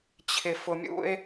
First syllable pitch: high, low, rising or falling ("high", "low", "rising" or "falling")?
low